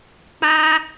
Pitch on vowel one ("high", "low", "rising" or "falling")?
high